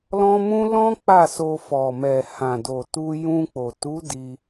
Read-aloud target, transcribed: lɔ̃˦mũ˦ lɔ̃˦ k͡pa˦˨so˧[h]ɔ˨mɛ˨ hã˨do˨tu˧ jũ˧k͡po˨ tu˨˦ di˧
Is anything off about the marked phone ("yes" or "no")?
yes